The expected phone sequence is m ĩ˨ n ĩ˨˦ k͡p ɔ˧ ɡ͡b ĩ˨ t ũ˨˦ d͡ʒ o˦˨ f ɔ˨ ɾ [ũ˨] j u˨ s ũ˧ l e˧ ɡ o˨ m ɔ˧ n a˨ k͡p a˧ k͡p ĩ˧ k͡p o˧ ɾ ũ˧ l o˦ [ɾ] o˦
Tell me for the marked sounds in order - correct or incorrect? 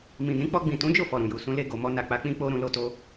correct, incorrect

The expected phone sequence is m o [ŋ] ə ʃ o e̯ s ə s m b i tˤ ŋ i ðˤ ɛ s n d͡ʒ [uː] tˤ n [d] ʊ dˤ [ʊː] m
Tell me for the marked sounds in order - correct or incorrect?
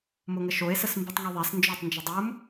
correct, incorrect, incorrect, correct

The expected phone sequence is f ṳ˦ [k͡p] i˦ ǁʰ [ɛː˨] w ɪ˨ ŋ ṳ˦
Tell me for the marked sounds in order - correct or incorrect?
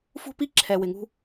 incorrect, incorrect

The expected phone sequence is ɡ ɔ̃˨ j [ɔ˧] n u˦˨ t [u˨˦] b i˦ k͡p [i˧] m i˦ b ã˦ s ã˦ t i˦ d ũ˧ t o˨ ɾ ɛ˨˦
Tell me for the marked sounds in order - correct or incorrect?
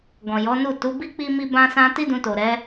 incorrect, correct, incorrect

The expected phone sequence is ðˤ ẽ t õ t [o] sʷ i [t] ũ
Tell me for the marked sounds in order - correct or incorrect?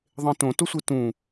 correct, correct

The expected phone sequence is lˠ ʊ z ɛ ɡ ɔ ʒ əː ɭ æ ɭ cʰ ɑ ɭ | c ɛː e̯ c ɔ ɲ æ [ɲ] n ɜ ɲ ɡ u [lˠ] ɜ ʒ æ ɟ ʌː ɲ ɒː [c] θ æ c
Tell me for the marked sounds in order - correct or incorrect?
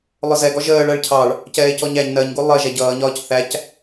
correct, correct, correct

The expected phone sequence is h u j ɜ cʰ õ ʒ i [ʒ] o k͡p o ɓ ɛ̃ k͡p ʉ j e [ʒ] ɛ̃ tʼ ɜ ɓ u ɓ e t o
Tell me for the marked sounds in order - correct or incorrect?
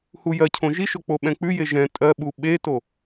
incorrect, correct

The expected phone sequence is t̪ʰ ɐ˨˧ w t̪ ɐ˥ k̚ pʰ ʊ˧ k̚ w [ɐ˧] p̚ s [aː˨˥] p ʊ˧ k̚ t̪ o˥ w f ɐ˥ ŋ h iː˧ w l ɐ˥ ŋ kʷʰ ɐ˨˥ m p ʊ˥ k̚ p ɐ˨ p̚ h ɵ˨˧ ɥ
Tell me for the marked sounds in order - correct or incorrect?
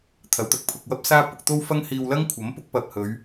incorrect, incorrect

